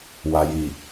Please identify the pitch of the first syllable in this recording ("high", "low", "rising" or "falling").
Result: low